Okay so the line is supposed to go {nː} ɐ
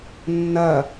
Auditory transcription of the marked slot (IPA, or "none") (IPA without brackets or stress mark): nː